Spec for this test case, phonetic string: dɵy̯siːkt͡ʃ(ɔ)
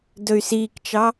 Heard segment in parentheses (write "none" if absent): ɑ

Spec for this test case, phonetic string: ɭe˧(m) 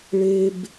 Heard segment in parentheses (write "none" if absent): b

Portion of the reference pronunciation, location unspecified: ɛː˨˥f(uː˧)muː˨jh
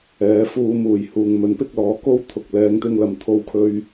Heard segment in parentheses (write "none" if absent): uː˧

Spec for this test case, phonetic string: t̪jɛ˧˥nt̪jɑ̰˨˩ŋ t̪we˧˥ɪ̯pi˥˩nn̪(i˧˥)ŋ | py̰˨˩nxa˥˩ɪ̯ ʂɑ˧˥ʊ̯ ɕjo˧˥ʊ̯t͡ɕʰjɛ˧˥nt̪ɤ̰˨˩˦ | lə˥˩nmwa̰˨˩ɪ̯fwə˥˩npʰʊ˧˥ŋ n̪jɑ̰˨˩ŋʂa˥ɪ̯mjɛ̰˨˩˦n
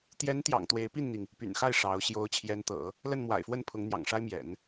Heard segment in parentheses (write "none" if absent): i˩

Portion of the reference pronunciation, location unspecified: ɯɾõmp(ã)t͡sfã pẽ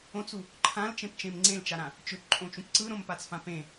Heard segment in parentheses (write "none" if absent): a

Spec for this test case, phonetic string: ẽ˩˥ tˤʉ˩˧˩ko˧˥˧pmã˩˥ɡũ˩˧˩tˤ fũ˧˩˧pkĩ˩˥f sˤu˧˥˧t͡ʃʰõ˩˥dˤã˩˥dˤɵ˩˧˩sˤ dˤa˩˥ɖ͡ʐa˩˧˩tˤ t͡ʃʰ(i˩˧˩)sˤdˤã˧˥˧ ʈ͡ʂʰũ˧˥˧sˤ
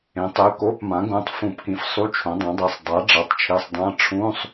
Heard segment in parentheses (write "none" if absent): i˩˧˩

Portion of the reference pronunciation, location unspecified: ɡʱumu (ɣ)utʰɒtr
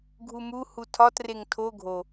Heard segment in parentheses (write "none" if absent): h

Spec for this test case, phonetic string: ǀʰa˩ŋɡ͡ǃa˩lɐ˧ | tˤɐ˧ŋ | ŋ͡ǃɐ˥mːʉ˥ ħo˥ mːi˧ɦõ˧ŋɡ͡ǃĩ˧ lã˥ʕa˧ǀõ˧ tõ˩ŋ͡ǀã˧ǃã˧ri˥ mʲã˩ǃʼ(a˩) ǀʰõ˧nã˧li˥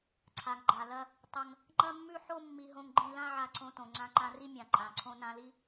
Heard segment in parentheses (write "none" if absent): ã˩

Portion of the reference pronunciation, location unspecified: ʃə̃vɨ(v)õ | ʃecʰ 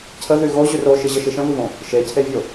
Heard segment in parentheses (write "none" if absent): v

